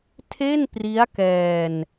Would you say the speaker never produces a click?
yes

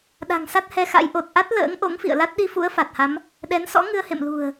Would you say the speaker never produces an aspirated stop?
yes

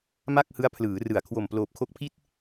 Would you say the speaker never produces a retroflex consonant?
yes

